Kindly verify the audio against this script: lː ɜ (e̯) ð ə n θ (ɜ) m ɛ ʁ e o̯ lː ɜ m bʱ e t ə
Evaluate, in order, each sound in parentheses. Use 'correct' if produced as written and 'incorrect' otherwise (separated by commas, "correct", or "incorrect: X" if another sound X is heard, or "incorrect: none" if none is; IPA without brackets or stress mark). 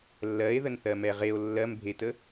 correct, correct